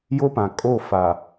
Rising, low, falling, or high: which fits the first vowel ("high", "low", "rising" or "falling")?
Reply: high